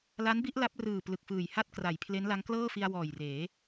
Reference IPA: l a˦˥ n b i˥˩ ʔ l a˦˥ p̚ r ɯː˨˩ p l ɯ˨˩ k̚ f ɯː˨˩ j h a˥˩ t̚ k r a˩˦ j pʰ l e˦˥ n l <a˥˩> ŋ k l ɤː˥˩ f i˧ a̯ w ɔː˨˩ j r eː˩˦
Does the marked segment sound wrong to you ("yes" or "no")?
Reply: yes